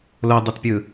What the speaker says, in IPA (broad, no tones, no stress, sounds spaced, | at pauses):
l o dˤ ʌ t pʲ ɯ